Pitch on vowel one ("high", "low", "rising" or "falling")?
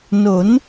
rising